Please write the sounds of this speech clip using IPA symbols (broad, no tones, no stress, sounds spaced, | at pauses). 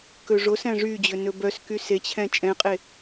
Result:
k ɵ ʐ o s æ̃ ʐ y d͡ʑ ɵ n ɵ b œ s k y s e t͡ɕʰ ɛ̃ t͡ʃʼ ɛ̃ qʼ e